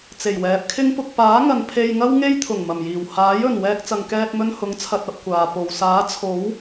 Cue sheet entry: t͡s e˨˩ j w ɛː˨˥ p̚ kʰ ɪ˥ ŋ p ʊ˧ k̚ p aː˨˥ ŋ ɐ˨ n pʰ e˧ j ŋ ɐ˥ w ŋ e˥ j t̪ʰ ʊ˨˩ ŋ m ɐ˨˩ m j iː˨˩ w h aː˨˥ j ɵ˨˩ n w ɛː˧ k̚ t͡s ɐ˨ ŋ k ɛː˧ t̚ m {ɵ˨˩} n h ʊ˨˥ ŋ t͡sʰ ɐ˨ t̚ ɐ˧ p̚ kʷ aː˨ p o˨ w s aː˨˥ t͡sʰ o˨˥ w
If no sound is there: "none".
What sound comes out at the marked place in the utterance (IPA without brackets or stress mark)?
ɵ˧